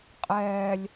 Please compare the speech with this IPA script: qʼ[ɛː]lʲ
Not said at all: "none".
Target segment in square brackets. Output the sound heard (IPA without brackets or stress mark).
ɛː